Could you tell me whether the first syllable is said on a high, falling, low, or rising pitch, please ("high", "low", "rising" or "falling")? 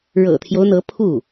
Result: low